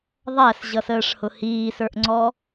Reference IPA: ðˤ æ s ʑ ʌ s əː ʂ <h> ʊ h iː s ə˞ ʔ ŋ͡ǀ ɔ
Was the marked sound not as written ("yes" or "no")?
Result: no